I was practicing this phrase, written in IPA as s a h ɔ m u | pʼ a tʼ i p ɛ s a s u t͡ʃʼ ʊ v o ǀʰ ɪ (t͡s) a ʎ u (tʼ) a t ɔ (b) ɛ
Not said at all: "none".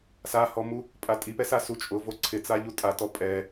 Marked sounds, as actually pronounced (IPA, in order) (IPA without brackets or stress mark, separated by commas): t͡s, tʼ, pʼ